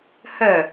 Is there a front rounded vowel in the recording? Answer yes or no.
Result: yes